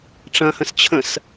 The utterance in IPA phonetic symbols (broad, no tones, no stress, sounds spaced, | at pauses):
ʈ͡ʂ ɐ̃ h ə̃ s t͡ɕʰ ə̃ s